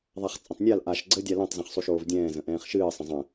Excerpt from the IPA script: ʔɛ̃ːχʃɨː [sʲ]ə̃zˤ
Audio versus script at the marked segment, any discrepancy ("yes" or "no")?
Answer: yes